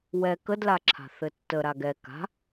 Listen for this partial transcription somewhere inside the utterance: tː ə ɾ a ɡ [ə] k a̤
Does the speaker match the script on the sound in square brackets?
no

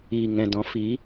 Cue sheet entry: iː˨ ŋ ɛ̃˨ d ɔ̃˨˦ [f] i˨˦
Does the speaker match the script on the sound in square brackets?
yes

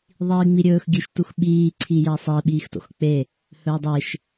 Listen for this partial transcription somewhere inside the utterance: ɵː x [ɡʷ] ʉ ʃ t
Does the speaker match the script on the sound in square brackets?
no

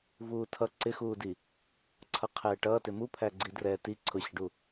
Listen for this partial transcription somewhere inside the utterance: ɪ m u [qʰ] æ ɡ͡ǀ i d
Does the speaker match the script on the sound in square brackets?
no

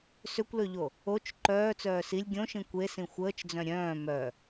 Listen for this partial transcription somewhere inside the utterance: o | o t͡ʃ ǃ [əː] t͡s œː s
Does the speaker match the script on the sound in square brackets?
no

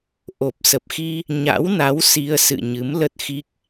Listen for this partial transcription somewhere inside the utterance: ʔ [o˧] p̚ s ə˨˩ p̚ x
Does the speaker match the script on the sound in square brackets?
no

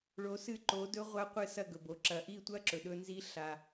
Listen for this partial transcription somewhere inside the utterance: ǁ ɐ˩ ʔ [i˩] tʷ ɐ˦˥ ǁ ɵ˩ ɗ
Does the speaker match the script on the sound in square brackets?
no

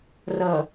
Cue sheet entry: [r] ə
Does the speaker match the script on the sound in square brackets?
yes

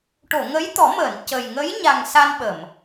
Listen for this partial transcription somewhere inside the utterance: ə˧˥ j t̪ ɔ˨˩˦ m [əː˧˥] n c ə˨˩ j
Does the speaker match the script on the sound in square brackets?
no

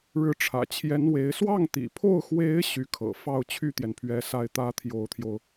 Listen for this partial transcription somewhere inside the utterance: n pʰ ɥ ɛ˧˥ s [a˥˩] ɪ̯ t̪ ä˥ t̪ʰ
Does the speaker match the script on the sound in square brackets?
yes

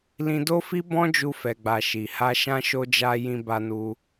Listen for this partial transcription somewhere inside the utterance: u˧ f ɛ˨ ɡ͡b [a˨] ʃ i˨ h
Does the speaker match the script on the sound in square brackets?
yes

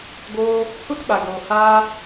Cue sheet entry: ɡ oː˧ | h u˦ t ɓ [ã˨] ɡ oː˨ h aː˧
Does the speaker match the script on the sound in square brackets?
no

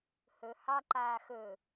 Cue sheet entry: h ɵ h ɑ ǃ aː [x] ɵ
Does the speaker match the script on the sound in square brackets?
yes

